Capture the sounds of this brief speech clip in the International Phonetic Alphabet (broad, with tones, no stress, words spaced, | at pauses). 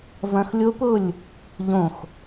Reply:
vɐ̃˦˥x lʲo˦˥pʊ˥˧lʲ | ʎõ˥˧x